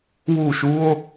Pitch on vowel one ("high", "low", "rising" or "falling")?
falling